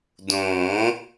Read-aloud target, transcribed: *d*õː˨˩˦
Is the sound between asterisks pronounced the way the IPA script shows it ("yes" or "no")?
yes